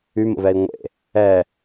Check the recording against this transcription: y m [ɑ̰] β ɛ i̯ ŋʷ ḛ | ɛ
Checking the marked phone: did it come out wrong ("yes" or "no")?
yes